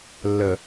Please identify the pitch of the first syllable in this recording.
low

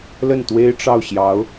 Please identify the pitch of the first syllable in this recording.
falling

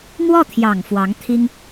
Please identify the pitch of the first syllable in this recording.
falling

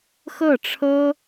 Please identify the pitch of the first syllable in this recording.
falling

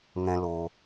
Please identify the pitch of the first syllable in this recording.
high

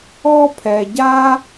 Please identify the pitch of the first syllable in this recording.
high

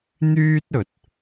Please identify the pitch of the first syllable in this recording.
high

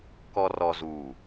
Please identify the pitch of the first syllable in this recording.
low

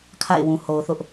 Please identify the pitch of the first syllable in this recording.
falling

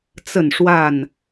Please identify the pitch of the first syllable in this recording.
falling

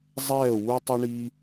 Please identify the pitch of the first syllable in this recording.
falling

